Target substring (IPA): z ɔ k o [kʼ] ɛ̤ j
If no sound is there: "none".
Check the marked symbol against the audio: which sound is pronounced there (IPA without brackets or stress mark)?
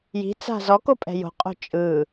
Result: pʼ